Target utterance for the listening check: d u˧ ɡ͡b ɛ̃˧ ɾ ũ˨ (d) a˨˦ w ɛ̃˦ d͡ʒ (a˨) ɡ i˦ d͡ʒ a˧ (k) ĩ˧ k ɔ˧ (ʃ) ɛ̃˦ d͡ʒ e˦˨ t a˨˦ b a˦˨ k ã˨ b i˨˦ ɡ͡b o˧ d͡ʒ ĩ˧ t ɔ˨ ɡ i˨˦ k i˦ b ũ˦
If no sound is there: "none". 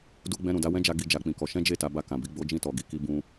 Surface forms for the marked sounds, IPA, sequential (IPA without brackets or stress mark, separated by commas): d, a˧, k͡p, ʃ